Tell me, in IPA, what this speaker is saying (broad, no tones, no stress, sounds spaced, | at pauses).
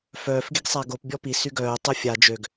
f œː f ɡ i ɡ sˤ a ɡ o p bʲ ɔ p i s y ɡ œː tˤ o fʲ a d͡ʒ ø ɡ